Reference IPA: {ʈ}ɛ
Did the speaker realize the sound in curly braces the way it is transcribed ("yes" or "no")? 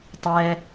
no